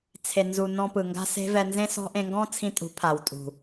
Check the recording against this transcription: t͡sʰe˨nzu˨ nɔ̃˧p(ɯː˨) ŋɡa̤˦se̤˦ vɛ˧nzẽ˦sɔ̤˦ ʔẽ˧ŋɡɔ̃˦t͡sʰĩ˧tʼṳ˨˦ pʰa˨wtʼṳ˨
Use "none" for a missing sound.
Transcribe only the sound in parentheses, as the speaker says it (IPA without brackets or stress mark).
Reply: ɯ˨